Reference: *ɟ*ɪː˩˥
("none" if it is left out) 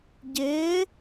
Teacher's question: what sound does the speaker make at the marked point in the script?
ɟ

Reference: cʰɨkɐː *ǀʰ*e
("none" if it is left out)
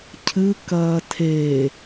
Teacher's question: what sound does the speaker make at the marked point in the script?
tʰ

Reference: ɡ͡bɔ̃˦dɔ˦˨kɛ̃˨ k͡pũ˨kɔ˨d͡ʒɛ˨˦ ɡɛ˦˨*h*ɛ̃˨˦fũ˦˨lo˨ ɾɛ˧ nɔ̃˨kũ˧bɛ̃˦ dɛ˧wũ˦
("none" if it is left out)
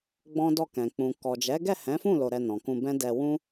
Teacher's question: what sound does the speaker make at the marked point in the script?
h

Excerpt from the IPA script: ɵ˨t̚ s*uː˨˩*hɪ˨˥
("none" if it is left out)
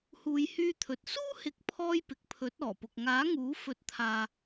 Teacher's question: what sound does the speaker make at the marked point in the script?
uː˥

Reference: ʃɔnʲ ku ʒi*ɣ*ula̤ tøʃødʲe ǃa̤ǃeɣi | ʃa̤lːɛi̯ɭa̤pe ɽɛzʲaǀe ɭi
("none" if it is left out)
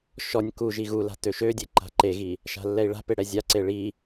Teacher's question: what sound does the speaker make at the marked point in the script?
ɣ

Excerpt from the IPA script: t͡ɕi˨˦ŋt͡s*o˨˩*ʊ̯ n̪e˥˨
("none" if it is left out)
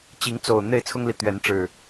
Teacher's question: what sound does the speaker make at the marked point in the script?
o˨˩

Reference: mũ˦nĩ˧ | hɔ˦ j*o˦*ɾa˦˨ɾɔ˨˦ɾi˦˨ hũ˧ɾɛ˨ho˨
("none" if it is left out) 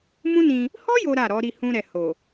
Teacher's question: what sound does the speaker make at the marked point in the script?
o˦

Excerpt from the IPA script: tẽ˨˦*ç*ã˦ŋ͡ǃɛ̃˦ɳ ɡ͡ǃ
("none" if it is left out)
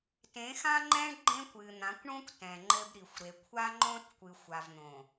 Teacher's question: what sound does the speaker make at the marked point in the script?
x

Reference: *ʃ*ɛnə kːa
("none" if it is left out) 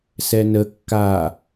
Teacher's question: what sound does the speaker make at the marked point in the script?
s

